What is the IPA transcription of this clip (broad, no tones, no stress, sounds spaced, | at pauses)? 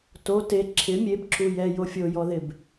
t o t e ǁʰ ɪ mʲ e b ǁ u j ɛ j o fʲ o j ɔ ð ɪ b